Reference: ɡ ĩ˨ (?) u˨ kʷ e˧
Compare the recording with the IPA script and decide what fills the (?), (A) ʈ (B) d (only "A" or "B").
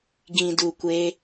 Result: B